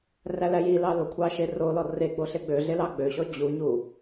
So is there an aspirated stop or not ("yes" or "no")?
yes